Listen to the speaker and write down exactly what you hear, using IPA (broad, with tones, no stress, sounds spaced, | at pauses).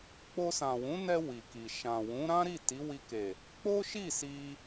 k͡p o˧ s ã˨ w ũ˨˦ n ɛ˧ w i˨ k i˨ ʃ ã˨ w ũ˨˦ ɾ ã˦ ɾ i˦˨ t i˨˦ w i˧ k e˨ | k͡p o˦ ʃ i˦˨ s i˧